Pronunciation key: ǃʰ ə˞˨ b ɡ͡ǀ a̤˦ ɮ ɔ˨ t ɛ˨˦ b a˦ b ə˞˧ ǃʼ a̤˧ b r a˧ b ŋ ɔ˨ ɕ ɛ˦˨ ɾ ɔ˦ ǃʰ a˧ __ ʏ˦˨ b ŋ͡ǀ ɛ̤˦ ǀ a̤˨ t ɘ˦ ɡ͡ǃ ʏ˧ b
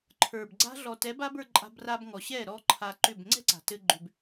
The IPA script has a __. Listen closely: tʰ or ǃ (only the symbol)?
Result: ǃ